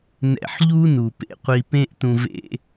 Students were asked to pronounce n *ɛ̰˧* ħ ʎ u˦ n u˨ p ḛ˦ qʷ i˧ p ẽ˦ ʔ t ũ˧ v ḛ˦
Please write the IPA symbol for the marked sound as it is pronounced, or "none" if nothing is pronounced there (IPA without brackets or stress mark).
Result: ɛ̰˧